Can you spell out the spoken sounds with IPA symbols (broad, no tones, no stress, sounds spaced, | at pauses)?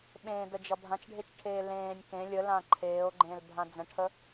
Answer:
ɓ ẽː d ə d͡ʒ ʌ bʱ ã t͡ʃ ɖʱ e t͡ʃ ʈʰ eː l ẽː nʲ k ẽ lʲ ə l ã ǃʰ eː o̯ ɡ͡ǃ ẽ l bʱ ã d͡z ə̃ ʈʰ ə